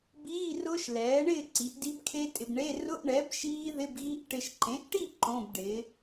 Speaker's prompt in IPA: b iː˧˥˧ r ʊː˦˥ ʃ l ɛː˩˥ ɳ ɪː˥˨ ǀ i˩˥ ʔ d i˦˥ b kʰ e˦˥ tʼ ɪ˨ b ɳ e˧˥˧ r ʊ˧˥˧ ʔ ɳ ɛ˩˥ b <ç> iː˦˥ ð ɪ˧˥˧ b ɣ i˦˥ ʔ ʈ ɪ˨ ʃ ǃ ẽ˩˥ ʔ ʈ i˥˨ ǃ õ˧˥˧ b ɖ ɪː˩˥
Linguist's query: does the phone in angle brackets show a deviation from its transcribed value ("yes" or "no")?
yes